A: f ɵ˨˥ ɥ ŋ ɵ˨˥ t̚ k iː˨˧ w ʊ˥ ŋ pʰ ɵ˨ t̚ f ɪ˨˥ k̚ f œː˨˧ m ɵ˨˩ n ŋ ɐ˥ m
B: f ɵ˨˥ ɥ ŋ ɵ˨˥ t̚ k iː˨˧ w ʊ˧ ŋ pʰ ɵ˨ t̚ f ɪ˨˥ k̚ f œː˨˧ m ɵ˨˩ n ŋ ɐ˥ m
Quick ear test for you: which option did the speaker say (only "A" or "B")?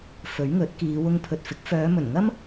B